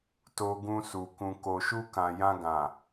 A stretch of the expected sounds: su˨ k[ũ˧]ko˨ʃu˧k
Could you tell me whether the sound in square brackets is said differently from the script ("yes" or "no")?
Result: yes